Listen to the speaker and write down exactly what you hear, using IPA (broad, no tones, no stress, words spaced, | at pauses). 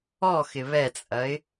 ɔxɪ βɛt͡sʼɐɪ̯